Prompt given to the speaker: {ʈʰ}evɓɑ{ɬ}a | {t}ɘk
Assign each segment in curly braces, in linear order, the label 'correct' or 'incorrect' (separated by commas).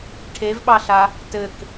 correct, correct, correct